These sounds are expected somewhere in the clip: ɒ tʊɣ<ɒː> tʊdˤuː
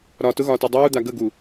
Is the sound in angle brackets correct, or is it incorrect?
correct